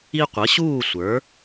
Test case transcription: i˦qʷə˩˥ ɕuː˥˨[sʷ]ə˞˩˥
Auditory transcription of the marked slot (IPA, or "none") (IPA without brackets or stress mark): sʷ